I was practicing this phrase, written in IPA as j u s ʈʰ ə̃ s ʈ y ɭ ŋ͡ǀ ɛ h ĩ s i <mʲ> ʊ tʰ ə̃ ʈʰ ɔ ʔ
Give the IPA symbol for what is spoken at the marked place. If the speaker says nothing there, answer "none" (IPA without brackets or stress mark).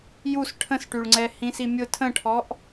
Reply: mʲ